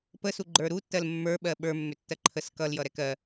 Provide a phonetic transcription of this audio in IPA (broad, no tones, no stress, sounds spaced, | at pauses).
p ə s u ɡ͡ǃ ə˞ ɾ u tː ɜ l mː ə˞ ɓ ɜ ɓ ə˞ mː ʏ tː ɜ ǃʰ ə s k ʌ l j ʌ ɾ ɛ k ɜ